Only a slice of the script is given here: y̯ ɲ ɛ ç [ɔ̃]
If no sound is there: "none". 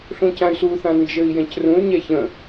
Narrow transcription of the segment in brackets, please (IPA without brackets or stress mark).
ə̃